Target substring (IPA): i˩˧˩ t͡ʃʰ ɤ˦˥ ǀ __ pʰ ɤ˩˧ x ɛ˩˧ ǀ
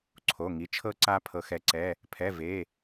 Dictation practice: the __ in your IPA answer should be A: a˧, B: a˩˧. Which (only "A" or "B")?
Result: A